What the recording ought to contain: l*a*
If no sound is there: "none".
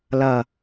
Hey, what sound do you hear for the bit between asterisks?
ʌ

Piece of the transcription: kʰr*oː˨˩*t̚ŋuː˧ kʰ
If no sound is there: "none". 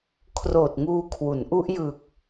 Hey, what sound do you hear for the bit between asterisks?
oː˨˩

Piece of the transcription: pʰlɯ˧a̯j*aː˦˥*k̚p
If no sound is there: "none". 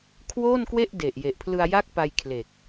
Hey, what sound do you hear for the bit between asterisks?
a˦˥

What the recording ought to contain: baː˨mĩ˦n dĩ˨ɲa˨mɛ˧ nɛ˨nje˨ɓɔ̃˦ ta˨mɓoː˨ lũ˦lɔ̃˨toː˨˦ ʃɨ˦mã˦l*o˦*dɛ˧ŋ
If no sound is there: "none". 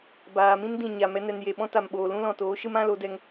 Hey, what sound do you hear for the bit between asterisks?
o˨˦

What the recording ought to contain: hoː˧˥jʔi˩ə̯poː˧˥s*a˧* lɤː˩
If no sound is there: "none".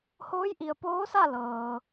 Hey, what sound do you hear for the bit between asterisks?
a˥˨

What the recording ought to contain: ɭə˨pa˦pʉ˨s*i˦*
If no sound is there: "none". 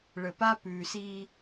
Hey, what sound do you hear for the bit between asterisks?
i˦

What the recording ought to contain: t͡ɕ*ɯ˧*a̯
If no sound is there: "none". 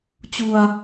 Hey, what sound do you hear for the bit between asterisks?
u˧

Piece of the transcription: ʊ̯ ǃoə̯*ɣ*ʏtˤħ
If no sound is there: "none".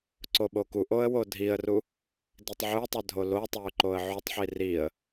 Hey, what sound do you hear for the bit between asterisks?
ʕ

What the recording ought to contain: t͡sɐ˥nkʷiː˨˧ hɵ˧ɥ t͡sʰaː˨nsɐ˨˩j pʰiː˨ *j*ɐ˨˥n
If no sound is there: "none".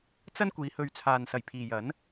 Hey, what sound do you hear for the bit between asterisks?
j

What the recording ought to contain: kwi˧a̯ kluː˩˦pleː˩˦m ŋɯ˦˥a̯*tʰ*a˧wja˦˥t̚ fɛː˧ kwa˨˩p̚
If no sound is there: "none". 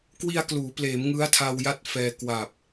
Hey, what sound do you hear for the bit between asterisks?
tʰ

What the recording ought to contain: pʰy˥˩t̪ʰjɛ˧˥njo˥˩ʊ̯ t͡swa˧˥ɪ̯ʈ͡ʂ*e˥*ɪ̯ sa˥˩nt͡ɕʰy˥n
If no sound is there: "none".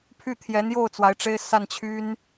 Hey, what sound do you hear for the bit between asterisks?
e˥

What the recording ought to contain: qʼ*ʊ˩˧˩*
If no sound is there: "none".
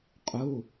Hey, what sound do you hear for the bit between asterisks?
u˩˧˩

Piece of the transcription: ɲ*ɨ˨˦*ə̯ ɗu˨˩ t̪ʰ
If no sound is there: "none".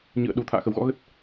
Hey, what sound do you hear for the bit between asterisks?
ɨ̰˧˨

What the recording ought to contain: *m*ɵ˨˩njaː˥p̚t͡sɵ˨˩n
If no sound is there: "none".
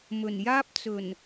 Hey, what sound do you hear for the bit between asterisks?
m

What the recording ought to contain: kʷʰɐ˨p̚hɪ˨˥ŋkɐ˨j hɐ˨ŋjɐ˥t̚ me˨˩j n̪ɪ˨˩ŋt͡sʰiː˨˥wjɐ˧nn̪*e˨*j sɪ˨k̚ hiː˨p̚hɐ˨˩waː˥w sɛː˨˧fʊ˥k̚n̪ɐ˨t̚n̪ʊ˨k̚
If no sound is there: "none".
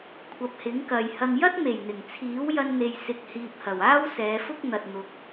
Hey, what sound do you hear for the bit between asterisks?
e˨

